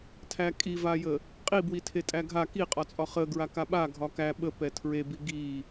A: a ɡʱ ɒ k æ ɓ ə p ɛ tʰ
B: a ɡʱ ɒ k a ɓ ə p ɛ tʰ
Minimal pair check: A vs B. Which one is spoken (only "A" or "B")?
A